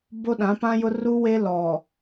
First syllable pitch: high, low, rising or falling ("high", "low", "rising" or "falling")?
high